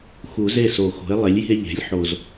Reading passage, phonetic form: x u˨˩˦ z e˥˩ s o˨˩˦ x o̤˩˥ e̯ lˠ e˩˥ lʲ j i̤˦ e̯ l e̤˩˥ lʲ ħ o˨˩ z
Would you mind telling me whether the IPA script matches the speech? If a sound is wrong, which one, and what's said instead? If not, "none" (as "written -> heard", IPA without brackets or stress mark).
l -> ʎ